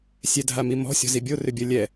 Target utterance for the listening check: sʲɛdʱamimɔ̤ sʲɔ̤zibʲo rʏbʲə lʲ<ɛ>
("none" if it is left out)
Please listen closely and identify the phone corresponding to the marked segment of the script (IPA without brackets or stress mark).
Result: ɛ